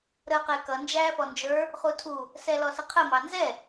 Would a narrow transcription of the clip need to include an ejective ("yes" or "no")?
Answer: no